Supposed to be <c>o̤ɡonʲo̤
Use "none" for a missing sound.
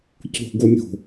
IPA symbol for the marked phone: c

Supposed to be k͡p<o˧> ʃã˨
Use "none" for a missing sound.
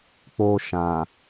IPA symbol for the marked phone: o˧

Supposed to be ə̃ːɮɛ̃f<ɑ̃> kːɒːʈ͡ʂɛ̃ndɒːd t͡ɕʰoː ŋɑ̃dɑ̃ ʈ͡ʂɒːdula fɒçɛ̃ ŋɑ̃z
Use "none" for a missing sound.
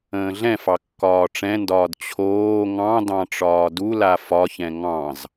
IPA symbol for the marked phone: ɑ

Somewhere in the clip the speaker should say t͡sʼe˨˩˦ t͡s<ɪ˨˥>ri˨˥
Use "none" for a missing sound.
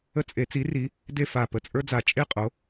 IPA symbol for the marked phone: i˨˥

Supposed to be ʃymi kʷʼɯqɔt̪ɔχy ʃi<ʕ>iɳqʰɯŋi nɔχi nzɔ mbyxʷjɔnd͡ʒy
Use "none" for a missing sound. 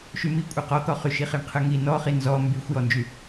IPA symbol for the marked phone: χ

